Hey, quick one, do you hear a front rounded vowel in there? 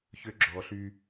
yes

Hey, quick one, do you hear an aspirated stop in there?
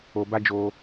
no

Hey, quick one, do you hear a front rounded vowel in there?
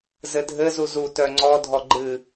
yes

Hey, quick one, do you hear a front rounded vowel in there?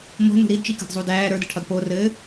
no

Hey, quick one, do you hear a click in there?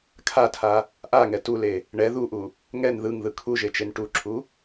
yes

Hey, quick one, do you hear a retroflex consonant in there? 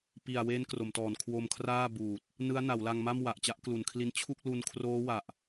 no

